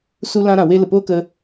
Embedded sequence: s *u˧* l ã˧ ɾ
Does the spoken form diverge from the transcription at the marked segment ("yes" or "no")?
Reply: no